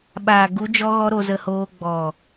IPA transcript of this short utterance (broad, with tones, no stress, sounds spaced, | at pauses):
ɓ aː˨ ɡ u˨˦ d͡ʒ ɔ˦ ɣ ɔ˦ ɾ o˧ z ə˧ h oː˧ ɡ͡b ɔ˨